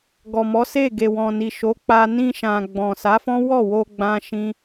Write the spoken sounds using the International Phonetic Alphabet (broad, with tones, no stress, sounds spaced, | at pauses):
ɡ ɔ˨ m ɔ˨˦ s e˦˨ ɡ e˨ w ɔ̃˨ n i˨ ʃ o˨˦ k͡p a˧ n ĩ˧ ʃ ã˨ ɡ͡b ɔ̃˨ s a˨˦ f ɔ̃˦ w ɔ˦˨ w o˧ ɡ͡b ã˦ ʃ ĩ˦